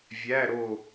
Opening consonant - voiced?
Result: yes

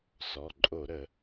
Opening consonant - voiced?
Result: no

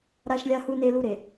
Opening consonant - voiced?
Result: yes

